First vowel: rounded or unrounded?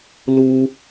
rounded